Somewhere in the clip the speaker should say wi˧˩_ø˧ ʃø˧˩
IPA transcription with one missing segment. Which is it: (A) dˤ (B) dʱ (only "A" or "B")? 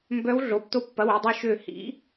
A